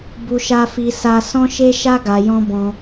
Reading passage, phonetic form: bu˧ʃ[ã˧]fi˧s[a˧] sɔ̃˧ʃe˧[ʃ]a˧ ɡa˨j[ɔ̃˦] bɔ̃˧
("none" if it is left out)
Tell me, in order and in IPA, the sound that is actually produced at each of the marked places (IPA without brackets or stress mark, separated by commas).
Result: a˧, a˧, ʃ, ɔ̃˧